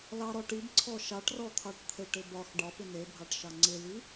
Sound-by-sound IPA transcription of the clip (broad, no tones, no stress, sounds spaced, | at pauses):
l ɑ ɾ ɔ ʈ i b ǀʰ ɔ ʃ ɑ ʈ r ɔ t̪ʰ ɑ ʈ t̪ʰ e ʈ ɪ b ɒ x ɖ ɒ p ɪ n e bʱ ɑ ʈ ʃ ɑ ŋ͡ǀ ɪ l i